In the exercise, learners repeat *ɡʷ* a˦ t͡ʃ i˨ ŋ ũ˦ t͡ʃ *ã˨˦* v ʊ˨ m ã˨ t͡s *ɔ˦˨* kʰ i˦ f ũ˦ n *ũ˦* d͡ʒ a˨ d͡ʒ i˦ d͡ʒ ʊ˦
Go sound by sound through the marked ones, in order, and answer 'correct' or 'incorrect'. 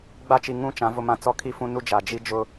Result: incorrect: ɡ͡b, correct, incorrect: ɔ˦, incorrect: u˦

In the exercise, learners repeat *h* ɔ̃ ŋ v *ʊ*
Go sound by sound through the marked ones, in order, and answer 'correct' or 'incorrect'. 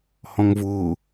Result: correct, incorrect: ʊː

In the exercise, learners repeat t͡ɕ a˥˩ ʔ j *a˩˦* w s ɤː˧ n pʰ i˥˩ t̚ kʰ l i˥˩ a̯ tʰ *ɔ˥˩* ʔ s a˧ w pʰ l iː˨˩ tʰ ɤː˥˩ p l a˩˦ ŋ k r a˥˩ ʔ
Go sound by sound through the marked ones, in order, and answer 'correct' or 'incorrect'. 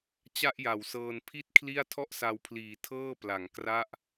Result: correct, correct

